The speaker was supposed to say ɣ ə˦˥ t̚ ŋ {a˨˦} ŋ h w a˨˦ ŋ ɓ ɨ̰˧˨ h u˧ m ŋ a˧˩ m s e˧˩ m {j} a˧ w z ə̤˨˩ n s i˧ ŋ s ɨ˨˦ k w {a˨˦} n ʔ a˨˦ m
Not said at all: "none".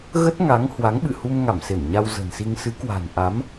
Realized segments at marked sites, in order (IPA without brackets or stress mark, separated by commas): a˨˦, ɲ, a̤˨˩